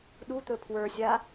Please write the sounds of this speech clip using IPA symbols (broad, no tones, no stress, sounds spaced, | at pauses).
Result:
ɗ u t̪ ɵ pʰ w ə˞ sʲ a